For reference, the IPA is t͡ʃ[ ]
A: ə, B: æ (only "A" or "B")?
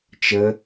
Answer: A